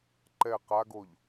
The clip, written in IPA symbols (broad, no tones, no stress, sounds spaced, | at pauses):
ǃ ɛ q a ɡ o ʎ